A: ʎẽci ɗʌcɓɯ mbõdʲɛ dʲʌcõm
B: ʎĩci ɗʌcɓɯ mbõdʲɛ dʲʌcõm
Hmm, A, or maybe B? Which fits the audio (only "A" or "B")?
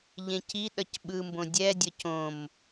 A